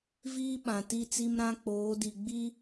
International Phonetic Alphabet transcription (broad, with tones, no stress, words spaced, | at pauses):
viː˦ɓã˨ ti˦˨t͡si˦mɾã˦ k͡poː˨˦di˨ ɡ͡bi˦